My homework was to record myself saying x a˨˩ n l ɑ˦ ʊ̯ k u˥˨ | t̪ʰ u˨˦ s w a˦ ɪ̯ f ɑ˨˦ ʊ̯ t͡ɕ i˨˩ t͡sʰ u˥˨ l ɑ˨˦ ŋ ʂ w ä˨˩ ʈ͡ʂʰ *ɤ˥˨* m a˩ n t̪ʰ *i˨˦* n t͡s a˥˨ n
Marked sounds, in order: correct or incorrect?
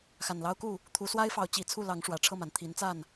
correct, correct

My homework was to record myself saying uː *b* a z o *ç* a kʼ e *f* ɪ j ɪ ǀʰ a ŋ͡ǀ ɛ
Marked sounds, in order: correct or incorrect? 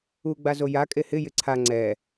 incorrect: ɡ͡b, incorrect: j, incorrect: h

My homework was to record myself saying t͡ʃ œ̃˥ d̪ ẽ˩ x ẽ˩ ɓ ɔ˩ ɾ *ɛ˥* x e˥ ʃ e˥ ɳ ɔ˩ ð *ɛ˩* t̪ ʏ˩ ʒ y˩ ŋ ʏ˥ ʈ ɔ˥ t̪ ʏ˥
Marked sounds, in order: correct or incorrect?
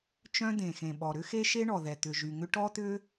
incorrect: ʏ˥, correct

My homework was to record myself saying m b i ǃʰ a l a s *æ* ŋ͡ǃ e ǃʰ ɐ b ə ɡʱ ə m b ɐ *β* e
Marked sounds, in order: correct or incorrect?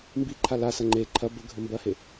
incorrect: ɐ, incorrect: h

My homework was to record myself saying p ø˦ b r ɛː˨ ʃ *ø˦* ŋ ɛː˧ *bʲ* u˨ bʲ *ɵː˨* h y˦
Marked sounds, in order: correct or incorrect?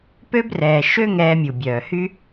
correct, incorrect: mʲ, incorrect: œː˨

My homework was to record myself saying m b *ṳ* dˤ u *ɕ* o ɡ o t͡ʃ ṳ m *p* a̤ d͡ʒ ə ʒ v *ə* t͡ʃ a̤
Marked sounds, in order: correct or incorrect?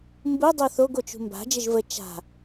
incorrect: u, incorrect: θ, incorrect: b, correct

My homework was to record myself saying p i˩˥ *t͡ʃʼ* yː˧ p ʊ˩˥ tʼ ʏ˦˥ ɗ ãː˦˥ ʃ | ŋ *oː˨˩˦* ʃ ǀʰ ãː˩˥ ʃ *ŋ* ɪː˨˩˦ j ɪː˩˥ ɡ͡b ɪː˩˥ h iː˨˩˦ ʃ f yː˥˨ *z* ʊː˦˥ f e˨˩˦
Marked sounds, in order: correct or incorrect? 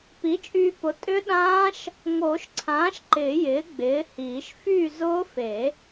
correct, correct, incorrect: ǃ, correct

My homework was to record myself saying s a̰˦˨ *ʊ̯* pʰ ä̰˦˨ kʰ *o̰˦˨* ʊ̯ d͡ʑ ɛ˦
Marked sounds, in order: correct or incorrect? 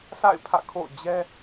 incorrect: ɪ̯, correct

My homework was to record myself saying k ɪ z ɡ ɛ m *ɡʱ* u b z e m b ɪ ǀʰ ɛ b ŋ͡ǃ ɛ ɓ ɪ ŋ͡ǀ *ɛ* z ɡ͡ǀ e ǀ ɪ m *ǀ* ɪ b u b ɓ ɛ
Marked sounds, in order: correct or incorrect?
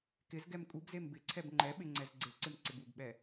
incorrect: kʼ, correct, correct

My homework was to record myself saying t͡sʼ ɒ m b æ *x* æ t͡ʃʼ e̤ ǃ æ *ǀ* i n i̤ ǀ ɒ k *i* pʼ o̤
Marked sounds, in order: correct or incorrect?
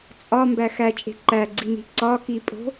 correct, incorrect: ɡ͡ǀ, correct

